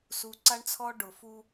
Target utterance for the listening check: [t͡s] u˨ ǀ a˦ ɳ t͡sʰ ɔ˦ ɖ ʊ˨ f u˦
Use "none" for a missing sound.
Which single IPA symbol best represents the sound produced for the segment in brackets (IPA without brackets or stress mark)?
s